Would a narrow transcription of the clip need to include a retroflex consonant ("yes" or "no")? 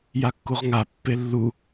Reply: no